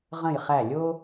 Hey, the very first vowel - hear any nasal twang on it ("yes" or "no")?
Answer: yes